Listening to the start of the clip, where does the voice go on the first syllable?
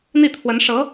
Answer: falling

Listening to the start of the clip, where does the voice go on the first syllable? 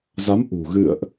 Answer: rising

